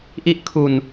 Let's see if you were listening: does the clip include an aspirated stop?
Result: yes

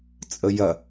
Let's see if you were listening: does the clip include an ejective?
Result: yes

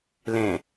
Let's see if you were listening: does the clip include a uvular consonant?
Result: no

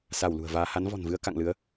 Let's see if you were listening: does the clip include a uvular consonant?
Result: no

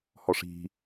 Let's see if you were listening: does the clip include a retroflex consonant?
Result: yes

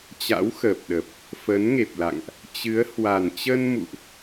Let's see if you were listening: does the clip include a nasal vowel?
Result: no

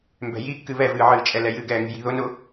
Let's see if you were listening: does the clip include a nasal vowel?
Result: no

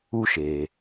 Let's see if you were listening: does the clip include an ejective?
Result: no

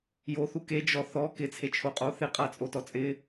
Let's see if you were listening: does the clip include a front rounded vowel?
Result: no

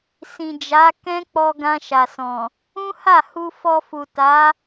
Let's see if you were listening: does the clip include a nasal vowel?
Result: yes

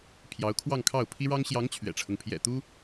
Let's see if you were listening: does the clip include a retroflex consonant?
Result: yes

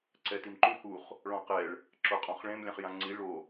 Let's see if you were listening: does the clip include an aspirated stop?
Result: no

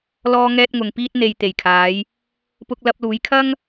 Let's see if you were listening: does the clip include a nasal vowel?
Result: no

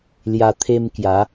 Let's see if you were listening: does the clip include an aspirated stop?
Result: yes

